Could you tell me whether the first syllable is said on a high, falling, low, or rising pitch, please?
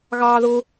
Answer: high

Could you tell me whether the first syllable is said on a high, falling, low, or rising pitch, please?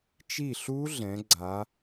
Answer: falling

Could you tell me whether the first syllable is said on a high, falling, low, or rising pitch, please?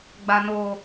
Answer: low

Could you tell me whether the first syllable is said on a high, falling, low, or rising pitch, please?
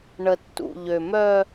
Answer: low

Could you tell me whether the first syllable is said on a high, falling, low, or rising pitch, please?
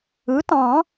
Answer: rising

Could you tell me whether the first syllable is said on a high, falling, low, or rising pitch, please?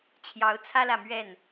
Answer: rising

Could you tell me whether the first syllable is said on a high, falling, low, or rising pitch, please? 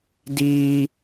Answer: high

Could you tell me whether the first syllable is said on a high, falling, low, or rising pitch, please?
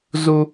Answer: high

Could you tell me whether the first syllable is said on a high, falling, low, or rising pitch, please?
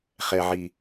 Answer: low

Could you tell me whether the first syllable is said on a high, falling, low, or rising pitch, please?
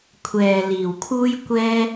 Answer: low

